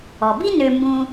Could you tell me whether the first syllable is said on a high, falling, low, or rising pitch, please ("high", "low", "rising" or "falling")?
low